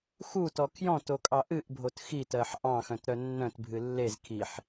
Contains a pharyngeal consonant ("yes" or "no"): yes